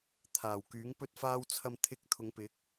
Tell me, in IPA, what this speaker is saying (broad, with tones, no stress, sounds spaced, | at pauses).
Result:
t̪ʰ aː˨˩ w k yː˨˥ ŋ p ɵ˥ t̚ f aː˥ w t͡sʰ ɐ˧ m t̪ʰ ɪ˧ k̚ t̪ʰ ʊ˨˧ ŋ p ɪ˨˥ k̚